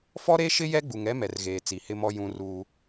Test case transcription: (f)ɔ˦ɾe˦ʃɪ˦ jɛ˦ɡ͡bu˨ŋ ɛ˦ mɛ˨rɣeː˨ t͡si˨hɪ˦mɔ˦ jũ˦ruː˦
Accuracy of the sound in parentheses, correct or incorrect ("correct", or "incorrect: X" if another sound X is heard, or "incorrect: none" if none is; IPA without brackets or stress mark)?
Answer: correct